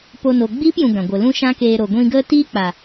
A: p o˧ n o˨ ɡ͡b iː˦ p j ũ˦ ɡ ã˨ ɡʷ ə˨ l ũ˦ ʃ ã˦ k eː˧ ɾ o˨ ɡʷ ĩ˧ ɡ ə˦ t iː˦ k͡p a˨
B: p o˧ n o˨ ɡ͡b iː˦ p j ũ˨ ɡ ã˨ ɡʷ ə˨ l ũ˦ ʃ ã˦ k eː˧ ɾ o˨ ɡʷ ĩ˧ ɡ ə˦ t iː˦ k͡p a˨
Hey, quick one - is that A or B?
B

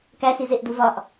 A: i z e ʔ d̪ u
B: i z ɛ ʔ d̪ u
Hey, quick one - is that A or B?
A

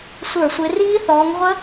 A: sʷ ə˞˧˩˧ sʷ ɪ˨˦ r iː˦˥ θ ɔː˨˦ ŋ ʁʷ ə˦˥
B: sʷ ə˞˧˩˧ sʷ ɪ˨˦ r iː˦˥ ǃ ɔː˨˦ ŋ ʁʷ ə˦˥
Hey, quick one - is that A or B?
A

